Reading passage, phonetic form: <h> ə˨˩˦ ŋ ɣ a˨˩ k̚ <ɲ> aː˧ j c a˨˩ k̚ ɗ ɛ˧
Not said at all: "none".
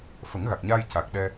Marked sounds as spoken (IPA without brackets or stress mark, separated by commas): f, ɲ